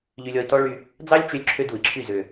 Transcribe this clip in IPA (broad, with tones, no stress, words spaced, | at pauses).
ʎy˧lʲɔ˧i̯tɔ˦ɭy˧ | d͡zɑ˦lʲt͡ʃø˧lʲ ǁʰø˦du˨i̯ǁʰy˦˨ zø˨